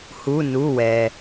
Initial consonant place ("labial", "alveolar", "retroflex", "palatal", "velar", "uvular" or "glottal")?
glottal